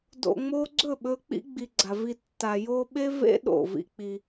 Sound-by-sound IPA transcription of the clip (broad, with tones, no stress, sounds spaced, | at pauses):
d o̰˨ ŋ͡m o˧ ɡ͡ǀ ɵ˦˨ ɓ ɵ˧ k͡p ḭ˦ ɡ͡b i˨ ɡ͡ǀ a˨ v i˧ tː a˨ j o˦ ɓ e˦ v ḛ˦ ɗ o̰˦˨ v ḭ˦ k͡p i˧